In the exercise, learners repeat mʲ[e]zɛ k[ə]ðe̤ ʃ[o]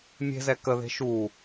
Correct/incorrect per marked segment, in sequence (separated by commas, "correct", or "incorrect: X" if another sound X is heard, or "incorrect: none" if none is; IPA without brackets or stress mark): incorrect: e̤, correct, incorrect: u